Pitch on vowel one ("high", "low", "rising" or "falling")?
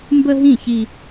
high